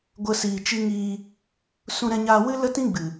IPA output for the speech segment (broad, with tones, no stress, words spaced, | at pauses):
ɡʷə˦siː˧t͡ʃi˦ ŋiː˧ | sũ˧ɾɛ̃˧ɲaː˧wɨ˦ lə˦tĩ˦ɡ͡bɨ˨